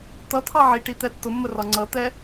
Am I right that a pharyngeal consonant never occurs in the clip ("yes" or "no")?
no